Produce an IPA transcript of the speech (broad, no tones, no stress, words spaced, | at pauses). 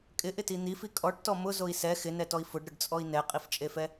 kʼɪʔɪti n̪ifi kʼɔʈtɔ mʊzoi̯ sɛ xɪnɛtɔi̯ fʊɖɾʊɖt͡sʼɔi̯ nɛqʼift͡ʃʼefɛ